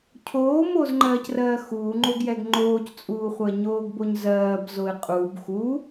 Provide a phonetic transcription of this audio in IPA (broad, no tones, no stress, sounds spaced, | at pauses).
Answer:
cʰ oː m oː z ŋ͡ǃ ɜː c r ɜː x uː ŋ͡ǃ o ɡ j ɛ ɡ ŋ͡ǃ oː c t͡sʼ uː χʷ ɜ ɲ oː ɡ b o ɲ z ɜː b z o ɪ̯ qʼ u b x u